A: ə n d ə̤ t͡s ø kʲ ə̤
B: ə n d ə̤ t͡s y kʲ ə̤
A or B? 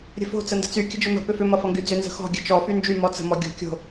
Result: B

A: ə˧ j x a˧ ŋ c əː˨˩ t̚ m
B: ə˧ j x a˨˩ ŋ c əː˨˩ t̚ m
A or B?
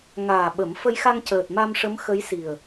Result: A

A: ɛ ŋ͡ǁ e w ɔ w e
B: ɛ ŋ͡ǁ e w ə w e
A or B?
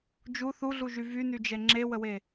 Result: B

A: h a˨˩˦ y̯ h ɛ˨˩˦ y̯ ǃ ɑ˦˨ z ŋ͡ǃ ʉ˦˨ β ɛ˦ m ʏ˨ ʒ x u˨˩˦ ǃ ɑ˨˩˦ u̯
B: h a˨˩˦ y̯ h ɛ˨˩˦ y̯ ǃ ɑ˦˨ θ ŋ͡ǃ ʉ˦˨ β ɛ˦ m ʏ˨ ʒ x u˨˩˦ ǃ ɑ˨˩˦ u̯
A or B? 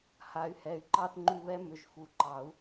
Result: B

